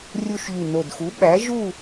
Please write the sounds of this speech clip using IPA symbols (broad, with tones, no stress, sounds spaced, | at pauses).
rʲ u˧ ʃ ʎ y˨˩ n o˨˩ d x u˩˥ ɓ æ˩˥ ʒ u˥˨